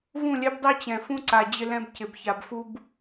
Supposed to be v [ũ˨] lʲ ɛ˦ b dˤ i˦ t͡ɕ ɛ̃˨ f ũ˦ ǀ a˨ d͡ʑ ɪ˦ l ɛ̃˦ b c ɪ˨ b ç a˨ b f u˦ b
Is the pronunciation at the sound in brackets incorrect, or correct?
incorrect